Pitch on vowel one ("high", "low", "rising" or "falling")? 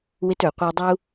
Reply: high